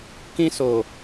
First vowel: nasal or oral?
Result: nasal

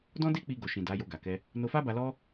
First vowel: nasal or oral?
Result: nasal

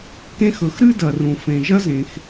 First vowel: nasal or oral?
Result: nasal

